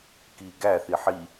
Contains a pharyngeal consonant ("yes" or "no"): yes